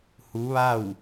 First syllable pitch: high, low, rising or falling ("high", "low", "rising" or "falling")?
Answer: rising